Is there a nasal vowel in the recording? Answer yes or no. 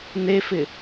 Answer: no